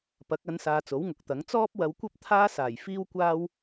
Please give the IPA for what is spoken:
pɐ˨˥k̚ɐ˨˧nsaː˨ t͡so˨˥wŋʊ˨˥k̚t̪ɐ˨˥ŋ t͡sɔː˥p̚wɐ˨˧w kʷɐ˥p̚t̪ʰaː˥saː˨˩j fiː˥w kʷaː˥w

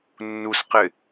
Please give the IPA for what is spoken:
nːusqɪ

